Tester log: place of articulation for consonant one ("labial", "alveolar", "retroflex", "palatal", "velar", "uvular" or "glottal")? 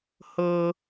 glottal